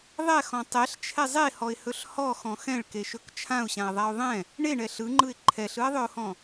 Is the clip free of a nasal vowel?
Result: no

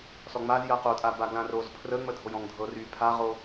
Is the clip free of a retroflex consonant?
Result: yes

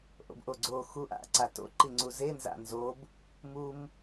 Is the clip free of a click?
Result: no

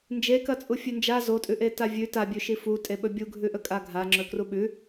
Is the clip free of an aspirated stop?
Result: yes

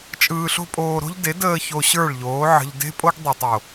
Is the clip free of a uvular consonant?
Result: yes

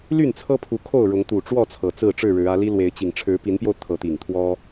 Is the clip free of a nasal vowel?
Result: yes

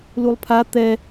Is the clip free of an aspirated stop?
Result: no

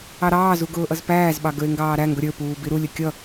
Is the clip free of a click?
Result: yes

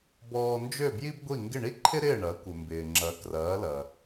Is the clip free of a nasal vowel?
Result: yes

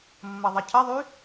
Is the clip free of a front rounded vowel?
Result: no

